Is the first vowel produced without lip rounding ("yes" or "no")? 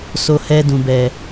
no